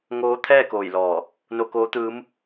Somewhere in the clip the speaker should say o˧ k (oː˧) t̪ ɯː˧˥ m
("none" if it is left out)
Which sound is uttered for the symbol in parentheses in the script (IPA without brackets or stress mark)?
oː˧˥